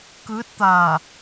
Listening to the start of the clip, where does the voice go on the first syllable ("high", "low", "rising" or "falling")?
rising